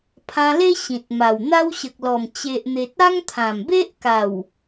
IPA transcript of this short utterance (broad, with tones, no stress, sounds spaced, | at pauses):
pʰ ã˧ l e˦ ɕ ĩ˨ t̚ m a˨˩ w n̪ a˦ w ɕ ə˨ k̚ l ɔ˨˩ m t͡ɕ e˨ ʔ n̪ e˨ t̚ a˦ ŋ t̪ʰ ã˨˩ m b e˦ ʔ k a˨˩ w